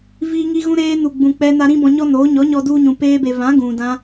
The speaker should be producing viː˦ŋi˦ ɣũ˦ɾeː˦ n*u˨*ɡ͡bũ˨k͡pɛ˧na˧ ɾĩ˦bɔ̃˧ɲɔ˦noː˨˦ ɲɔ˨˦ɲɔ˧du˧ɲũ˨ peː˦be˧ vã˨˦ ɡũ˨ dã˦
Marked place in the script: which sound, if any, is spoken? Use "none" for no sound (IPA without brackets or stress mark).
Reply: u˨